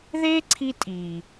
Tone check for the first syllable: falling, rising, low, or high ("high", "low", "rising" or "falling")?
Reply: high